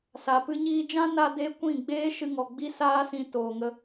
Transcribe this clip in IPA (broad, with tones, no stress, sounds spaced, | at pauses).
s a˨ p ɨ˧ ɲ iː˧ d͡ʒ ã˦ n a˧ d e˦ kʷ ĩ˦˨ ɡ͡b eː˦ ʃ ɨ˧ ŋ ɔ˨ ɡ͡b i˦ s aː˦ s ĩ˧ t oː˨ ŋ ə˧